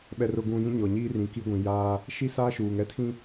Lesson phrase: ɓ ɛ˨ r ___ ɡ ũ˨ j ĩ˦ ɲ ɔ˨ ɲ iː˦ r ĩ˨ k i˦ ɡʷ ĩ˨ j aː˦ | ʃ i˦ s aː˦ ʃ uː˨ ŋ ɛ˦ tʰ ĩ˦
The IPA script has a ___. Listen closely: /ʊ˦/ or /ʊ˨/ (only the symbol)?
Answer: ʊ˨